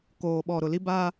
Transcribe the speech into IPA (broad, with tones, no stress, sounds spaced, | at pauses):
k oː˨ ɓ ɔ˨ ɾ ʊ˨ l i˦ b a˦